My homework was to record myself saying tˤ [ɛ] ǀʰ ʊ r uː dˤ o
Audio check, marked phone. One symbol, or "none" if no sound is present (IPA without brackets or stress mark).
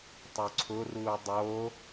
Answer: ø